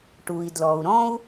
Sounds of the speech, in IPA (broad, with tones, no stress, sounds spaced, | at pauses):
ʈ u˩ i̯ d l ɔ˩ u̯ ɾ ɔ̃˥ u̯